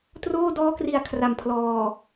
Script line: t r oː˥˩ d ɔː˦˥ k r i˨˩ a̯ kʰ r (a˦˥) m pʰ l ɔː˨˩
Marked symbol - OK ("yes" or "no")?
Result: no